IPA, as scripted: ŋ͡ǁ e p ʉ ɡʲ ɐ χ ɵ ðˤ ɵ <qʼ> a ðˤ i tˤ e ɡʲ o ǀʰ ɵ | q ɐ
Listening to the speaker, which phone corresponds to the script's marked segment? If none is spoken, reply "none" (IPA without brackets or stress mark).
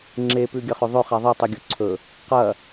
χ